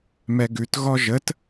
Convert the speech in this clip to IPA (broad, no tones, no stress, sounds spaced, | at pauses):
m ɛ ɡ ʉ t ɣ ɔ ʒ ə t